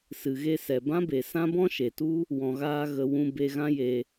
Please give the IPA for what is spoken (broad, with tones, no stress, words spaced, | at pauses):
sɨ˨ɣe˧sɛ˨ bã˦be˨ sã˦bɔ̃˦ʃe˨tu˦ | wɔ̃˧ɣaː˦ ɣə˧ wũ˧ be˧ɣã˦je˧